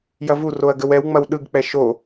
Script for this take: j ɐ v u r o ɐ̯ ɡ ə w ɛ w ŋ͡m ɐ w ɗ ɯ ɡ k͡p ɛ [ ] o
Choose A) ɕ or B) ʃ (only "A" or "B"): B